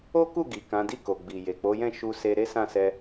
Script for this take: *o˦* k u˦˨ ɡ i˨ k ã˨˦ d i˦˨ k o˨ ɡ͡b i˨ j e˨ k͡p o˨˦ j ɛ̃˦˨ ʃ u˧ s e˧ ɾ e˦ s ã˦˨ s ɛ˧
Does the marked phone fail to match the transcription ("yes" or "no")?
no